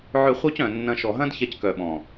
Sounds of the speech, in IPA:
ʕ ʏ˧ χʷ œ˦ c œ̃˨ nː ɐ̃˧ ʃ ɔ˨ ɦ ɐ̃˦ d ç ɛ˧ c k œ˨ ɓ ɔ̃˨

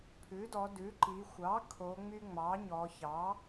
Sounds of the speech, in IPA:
pʰ ʉ˩˥ d ɔ˩˧ d ʉ˩˥ ǃ i˩˧ xʷ ɑ˩˥ kʰ o˩˧ ŋ͡m y˦ ŋ͡m ɑ˩˥ ɲ ɔ˩˧ ç ɑ˩˥

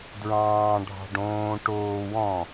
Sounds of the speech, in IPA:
d ɹ ɑ̃ː ɖʱ ɑ̤ ɖ õː ʈ oː w ɔ̃

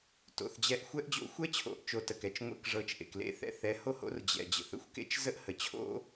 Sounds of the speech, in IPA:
t o̰˨ θ d͡ʑ ɛ˧ ʔ xʷ ɛ˦ ʔ d͡ʑ o̰˦ xʷ ɛ˦ t͡ɕʰ o̰˨˦ ʔ t͡ʃ o˨ t ə˨ k ɛ˨ t͡ʃ ŋʷ ḛ˦ k ʐ ɤ˧ t͡ʃ ʔ ḛ˨ k l ḛ˨˦ θ ɛ̰˧ θ ɛ˨˦ h o˦ h o̰˦ r d͡ʑ ɛ̰˨ d͡ʑ ə̰˨ θ ə̰˦ xʷ k ḛ˦ t͡ʃ z ə˦ ʔ h ə˨ t͡ɕʰ o̰˦

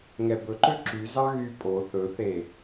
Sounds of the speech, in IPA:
ŋ ɛ b ɵ ǃ ø ǁ y z ɑ ɣ y pʼ o θ ɵ θ e

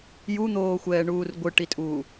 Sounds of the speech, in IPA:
j u n̪ oː xʷ ɛː ɳ uː r ɡʷ ɯ ʈ i tʼ uː

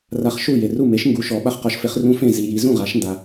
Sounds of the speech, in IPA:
r a˦ χ ʃ u˥˩ j e˨ r u˥˩ m e˨˥ ʃ ŋ ɡ u˨˥ ʃ ɔ˨˩˦ ɓ a˦ χ q ɔ˨˥ ʃ f e˨˥ χ r ũ˦ f ẽ˥˩ z i˨ j i˨˩˦ z ũ˥˩ ʁ a˨˩˦ ʃ n d a˨

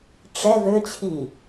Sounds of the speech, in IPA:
ʈ͡ʂ ɛ v ø t͡ɕʰ i

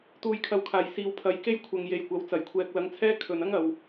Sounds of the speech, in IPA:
t̪ uː˨ j kʰ ɐ˨ w kʰ aː˨˩ j s iː˨ w pʰ ɐ˨˥ j k e˥ j kʷʰ ɐ˨ ŋ j e˨ j kʷ ɐ˨˥ w t͡s ɐ˨˩ j kʷʰ ɛː˨ k̚ l ɐ˨˥ ŋ t͡sʰ ɛː˥ kʰ ɵ˨ n ɐ˥ ŋ ɐ˨ w

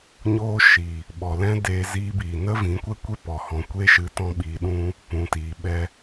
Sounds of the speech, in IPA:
ɲ oː˧ ʃ i˨ | ɓ ɔ˨ l ɛ̃˦ d eː˧ z iː˧ b iː˨ n ə˦ v ĩ˨˦ kʷ ɛ˦ kʷ e˦ p ɔ˨ h ɔ̃˨ kʷ eː˦ ʃ ɨ˧ t ɔ̃˦ ɓ iː˧ ɗ ũ˦ | p ũ˨ t iː˨ ɓ ɛ˧

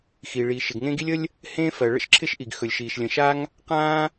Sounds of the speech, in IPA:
x i˩ ɭ iː˩ ʃ ɪ˩ ɡ ŋ ẽ˥ ɡ i˥ lʲ ə˥ lʲ | h ẽː˥ f ɜ˩ ɭ ə̰˥ ʃ ǁʰ ɪ˥ ʃ ʔ i˩ ɡ x ɵ˩ lʲ ʃ iː˩ ʃ lʲ ə̃˩ ʃ a˥ ŋ | q ãː˥

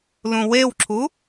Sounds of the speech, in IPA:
l ũ w e w ǁʰ u

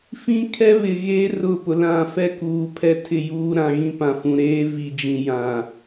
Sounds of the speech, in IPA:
f ĩ˦ kʰ ɛ˦ β ɪ˨ ɣ eː˦ r ʊ˦˨ p ʊ˨ l ã˦˨ f ɛ˦ k uː˨ pʰ ɛ˦ tʰ ɪ˦˨ j uː˦ ɾ ã˨ ɣ ĩ˦ p ã˨ f ũ˨ ɾ eː˦ v i˨ d͡ʒ ĩ˨ j ã˨

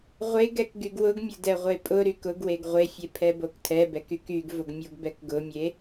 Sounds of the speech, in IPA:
ʁʷ e ɡ ɛ k ɡ y ɡ w ʊ ɡ mʲ ʊ d ɛ ʁʷ e pʼ ʊ ɾ y k ʊ ɡ w e ɡ ʁʷ e fʲ e pʰ ɛ b o k tʰ ɛ b ɛ k y k y ɡ v ʊ ɡ mʲ o ɡ b ɛ k ɡ ʊ mʲ e

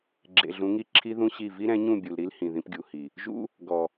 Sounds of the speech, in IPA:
ɡ͡ǁ ḛ˨ ɮ ũ˨˦ ŋ i˦˨ ǁʰ i˦ ð ũ˦ ɕ i˦˨ v i˦ ɾ ɛ̃˨˦ ɲ ũ˦˨ bʲ u˨ l ɾ i˦ l h ĩ˨ ð ĩ˦ p ɡʲ u˨ h i˨ | ʒ ṵ˦ | ɡ ɔ˨

